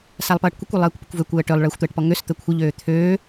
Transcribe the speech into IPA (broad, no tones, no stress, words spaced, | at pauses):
salˠpʌːʈkʷəkʷø lˠəːkʷpəkʷvøkʷ əːʈølˠ ɭəːxʷt̪əːʈpɔŋøs t̪əkʷʰəʎøː t̪ʰøː